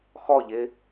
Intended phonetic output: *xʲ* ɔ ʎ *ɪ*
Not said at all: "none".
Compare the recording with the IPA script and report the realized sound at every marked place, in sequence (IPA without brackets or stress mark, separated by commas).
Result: x, ɪ